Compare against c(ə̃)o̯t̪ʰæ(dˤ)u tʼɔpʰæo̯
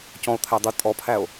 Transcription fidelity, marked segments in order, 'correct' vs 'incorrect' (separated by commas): incorrect, correct